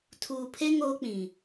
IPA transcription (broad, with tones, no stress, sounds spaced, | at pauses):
tʰ uː˨ pʰ e˦ ŋ oː˦ k͡p ĩ˨